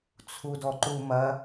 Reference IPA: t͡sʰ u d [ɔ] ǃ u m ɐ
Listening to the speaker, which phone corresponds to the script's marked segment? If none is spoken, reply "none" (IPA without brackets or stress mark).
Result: ɔ